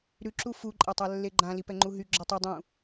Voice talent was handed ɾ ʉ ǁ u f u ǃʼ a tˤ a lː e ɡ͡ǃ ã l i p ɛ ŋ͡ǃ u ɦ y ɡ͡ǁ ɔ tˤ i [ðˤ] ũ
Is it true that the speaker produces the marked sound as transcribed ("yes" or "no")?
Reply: no